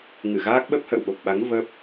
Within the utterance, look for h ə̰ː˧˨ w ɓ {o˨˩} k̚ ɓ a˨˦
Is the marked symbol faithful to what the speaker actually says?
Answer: yes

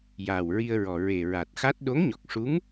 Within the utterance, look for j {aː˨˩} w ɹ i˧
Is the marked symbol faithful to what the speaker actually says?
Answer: yes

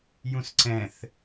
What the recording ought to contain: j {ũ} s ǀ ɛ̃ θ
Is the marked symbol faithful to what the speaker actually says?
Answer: yes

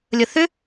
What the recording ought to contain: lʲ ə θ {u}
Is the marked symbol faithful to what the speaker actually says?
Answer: no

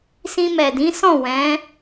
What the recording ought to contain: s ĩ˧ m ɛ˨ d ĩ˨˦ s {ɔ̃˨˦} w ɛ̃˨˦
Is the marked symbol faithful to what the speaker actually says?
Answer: no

